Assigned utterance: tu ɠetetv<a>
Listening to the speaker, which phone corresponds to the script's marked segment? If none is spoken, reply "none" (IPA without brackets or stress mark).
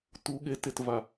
a